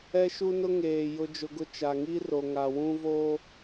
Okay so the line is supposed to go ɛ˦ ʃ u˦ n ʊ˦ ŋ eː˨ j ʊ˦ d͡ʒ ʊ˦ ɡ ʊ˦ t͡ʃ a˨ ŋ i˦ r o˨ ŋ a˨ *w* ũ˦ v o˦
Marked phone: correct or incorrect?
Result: correct